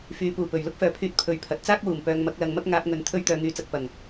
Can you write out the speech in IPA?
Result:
fyː˨˥puː˨˩pɵ˨˩ɥ lʊ˥k̚fœː˨pʰyː˧t̚ pʰɵ˧ɥpʰɐ˨˥t̚ t͡saː˥k̚wuː˨˩m pœː˨ŋmɐ˧k̚lɐ˨˧ŋmɐ˥k̚ ŋaː˧p̚ŋɵ˨˥n t̪ʰɵ˥ɥt̪œː˧ ŋyː˧t͡sɐ˧k̚ pɐ˨˩ŋ

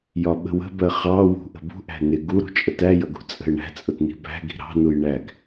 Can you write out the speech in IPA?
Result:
jɒɓə̤wə̤bɜ χɑwṳ ʔə̤bṳʔæ̤ nɪɡ uɾṳ t͡ʃʼətæjʌɡ ṳt͡sʼə̤ɪ̯ɳæ̤t͡sʼʊt ni̤bæ̤ɡi̤ ɾɑ̤nuj ɳæɡ

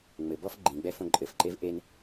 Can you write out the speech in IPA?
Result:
ŋ͡mɘbɔf ɡ͡ǃĩɡ͡bɛ fõǃʼɘfǃev ʔen

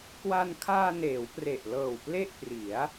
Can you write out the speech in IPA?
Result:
kwa˧nkʰaː˧ neː˩˦wpre˨˩ʔlɤː˨˩w ple˥˩ʔpri˩˦a̯

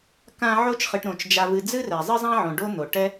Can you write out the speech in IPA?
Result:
kã˨ ʕo˦t͡ʃχɨ˨ʈ ɾõ˩t͡ʃd͡ʒa˨vɨ˨ d͡zɨ˦rɛ˩ zˤɨ˥zˤã˥ʕõ˨ ɖo˦n̪o˩ ʈɛ˦

